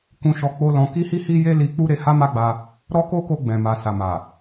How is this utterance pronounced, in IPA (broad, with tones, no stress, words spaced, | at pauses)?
kũ˧ʃɔ˧ k͡po˦lɔ̃˧ ki˦hi˦hi˦ je˦li˧ k͡pu˦ɾe˧ha˦ ma˦ɡ͡ba˧ | ɾɔ˦ko˦ko˧ ɡ͡bɛ̃˨ma˨ sa˨ma˨